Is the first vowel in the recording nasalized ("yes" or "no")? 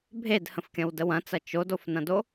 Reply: no